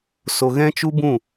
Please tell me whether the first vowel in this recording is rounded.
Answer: yes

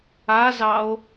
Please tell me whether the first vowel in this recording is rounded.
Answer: no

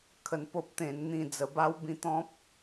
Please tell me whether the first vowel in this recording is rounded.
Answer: no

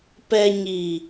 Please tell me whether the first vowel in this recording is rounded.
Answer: no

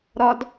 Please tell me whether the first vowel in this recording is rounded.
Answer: yes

